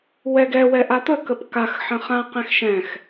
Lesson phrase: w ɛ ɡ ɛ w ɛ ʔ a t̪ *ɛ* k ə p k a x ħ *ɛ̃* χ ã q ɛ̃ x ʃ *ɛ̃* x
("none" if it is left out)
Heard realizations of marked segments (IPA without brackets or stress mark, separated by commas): ə, ə̃, ɛ̃